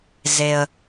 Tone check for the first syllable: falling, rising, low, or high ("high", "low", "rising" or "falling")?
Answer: low